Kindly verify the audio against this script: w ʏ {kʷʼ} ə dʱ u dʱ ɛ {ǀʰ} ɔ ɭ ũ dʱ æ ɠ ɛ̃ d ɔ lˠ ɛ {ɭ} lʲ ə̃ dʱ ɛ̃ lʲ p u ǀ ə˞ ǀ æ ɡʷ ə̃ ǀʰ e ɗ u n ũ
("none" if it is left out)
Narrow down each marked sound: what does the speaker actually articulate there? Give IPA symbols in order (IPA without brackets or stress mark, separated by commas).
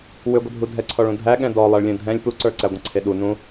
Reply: ɡʷ, ǀʰ, ɭ